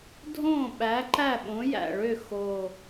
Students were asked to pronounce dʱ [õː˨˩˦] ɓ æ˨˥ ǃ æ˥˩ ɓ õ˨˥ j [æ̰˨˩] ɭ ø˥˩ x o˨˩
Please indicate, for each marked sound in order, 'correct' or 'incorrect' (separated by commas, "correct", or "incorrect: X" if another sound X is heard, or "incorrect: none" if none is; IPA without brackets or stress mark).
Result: incorrect: õː˥˩, correct